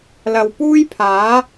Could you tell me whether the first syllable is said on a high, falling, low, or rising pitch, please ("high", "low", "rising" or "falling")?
low